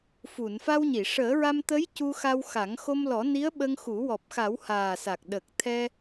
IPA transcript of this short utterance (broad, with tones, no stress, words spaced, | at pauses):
fu˨˩˨n fa˧wɲi˨˩˨ ʂəː˨˩˦ɹa˧mt̪ə˧˥j cu˧xa˧wxa˨˩˦ŋ xo˧mlɔ˨˩˦ni˧˥ə̯ ɓə˧ŋxu˨˩˦ wɔ˨˩p̚xa˨˩˦w haː˨˩sa˨˩k̚ ɗə˨˩k̚ t̪ʰɛ˧